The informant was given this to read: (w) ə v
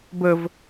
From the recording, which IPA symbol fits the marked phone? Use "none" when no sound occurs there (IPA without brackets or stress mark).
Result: b